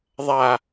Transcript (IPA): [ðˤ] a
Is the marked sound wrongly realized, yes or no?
no